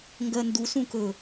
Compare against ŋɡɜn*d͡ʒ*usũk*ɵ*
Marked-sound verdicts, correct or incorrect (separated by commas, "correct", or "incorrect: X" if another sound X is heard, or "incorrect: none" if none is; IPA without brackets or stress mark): incorrect: d, correct